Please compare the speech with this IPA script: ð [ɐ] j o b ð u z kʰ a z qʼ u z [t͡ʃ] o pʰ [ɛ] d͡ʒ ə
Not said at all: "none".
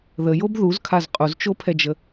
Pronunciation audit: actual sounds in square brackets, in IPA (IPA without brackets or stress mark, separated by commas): ə, t͡ʃ, ɛ